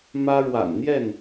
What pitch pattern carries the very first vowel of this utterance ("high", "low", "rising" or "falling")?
high